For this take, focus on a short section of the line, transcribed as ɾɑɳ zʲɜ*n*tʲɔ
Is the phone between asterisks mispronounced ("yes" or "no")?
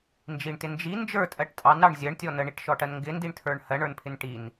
yes